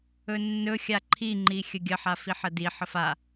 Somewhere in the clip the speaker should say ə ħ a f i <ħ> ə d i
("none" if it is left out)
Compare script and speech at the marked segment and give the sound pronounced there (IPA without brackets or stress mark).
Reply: ħ